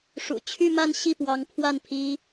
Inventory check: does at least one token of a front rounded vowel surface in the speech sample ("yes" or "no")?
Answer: yes